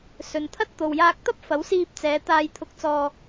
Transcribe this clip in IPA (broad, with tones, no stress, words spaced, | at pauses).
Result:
sɵ˨nt̪ʰɐ˥t̚ t̪o˨wjaː˧k̚t̪ɐ˥p̚ fɐ˨˥wsiː˧p̚t͡sɛː˨˧ t̪aː˧jt̪ʰʊ˧k̚t͡sɔː˧